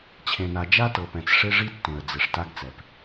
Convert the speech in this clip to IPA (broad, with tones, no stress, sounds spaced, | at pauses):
t͡ɕʰ ẽ˨ n a˨ d͡ʒ a˦ t ɤ˨ p ɛ̃˨ t͡s ʂ e˦ ʐ i˦ tː ẽ˨ ə̯ d͡z e˨ ʂ t a˦ ɡ t͡s ɛ˨ p